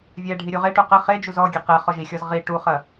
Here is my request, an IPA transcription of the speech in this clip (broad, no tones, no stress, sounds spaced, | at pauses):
vʲ ɛ ɖʱ i ɾʲ u ʁ e ʈ u q ɘ χ e d͡ʒ u z ɔ ɡʲ e q ɛ χ ɔ ʒ i xʲ ɔ z ʁ i ʈ u χ ɐ